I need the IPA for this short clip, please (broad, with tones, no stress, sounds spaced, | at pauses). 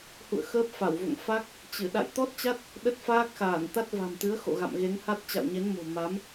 h ṵ˧˨ ə̯ x əː˦˥ p̚ f a˧˩ w v o̰˧˨ ŋ f a˦˥ k̚ | t͡ɕ ɨ˧˩ ɗ a̰˧˨ j t̪ ɔ˦˥ t̚ t͡ɕ a˦˥ t̚ | ɗ ə˦˥ t̚ f aː˦˥ k̚ x aː˧˩ n t̪ a˦˥ t̚ v a̤˨˩ m t̪ ɨ˨˦ ə̯ x o̰˧˨ ɣ a̰˧˨ m ɣ e˨˦ ŋ h a˦˥ t̚ t͡ɕ a̰˧˨ w ɲ e˨˦ n m o̤˨˩ m a˨˦ m